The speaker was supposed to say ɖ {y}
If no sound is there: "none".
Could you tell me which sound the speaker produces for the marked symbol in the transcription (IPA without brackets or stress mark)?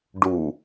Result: u